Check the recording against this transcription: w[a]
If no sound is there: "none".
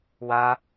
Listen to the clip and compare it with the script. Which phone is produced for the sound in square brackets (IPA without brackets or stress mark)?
a